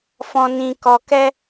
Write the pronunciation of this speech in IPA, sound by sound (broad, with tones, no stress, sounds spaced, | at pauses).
f ɔ̃˨ n ĩ˨ k ɔ˨ k ɛ˧